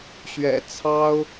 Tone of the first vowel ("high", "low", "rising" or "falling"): low